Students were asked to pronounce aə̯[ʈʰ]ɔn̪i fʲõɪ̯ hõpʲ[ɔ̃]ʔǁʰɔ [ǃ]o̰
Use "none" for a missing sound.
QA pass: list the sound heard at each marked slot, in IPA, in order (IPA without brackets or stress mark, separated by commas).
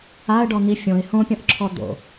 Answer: ɖ, ɔ̃, d̪